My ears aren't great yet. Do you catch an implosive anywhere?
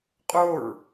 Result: no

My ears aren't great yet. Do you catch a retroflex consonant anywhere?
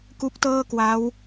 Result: no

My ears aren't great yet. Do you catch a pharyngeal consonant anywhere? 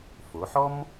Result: yes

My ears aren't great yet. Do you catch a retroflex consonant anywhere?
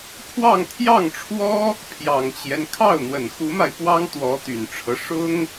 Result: yes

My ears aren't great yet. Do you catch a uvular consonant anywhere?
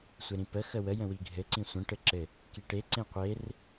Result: yes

